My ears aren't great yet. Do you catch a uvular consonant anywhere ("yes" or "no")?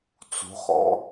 yes